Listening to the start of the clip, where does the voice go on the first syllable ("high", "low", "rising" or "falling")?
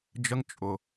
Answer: high